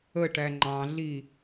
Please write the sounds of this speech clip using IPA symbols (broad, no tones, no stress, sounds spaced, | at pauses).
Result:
ə ʈ æ ŋ͡ǃ ɑ̃ ɮ i